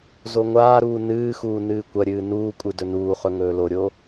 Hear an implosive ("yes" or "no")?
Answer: no